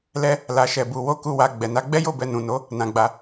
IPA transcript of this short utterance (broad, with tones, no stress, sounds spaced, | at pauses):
l ɛ˦ | l a˧ ʃ ɛ˧ b u˧ w o˦ k u˦˨ w a˧ ɡ͡b ɛ˨ n a˨˦ ɡ͡b ɛ˦ j o˦˨ b ɛ˧ n ũ˨ n o˨˦ | n ã˧ ɡ͡b a˧